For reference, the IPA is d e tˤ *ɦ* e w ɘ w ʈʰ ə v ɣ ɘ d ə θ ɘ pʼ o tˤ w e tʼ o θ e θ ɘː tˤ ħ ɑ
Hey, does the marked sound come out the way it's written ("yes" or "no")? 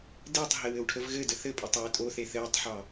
yes